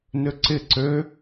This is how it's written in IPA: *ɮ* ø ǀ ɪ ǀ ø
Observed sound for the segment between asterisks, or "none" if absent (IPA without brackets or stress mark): n